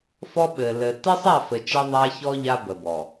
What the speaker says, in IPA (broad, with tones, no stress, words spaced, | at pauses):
fɔ˦ɓɘ˨ lɘ˨ tɘ˦sˤa˦˨fɘ˨ t͡ʃɛ˦ðˤa˦çɔ˦ ʎa˦bə˨bɔ˨